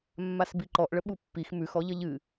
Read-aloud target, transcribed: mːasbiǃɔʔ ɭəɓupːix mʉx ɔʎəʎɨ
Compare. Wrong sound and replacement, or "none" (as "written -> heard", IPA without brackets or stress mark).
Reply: none